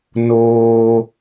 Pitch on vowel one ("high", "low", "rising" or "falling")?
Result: high